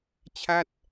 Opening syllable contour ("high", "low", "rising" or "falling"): falling